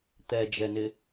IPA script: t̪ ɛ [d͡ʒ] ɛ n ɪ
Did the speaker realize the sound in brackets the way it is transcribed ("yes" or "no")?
yes